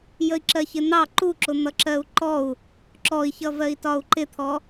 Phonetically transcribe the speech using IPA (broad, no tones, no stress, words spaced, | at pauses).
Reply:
jəi̯ǁɜçɪn̪ɑ ǃuǁʊ n̪ʌǁɜu̯ǃɔu̯ | ǁɔi̯çʌvɜi̯ tɒu̯ǃɪt̪ʰɔ